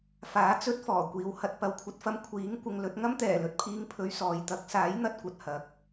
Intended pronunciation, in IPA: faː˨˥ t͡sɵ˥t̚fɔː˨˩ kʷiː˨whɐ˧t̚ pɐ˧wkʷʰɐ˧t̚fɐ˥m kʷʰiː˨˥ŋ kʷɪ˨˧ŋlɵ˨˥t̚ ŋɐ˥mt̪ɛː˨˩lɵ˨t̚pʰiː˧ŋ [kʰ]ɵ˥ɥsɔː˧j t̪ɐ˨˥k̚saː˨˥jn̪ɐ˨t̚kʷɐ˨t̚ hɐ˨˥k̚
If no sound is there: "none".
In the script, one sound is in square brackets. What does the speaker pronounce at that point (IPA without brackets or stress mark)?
pʰ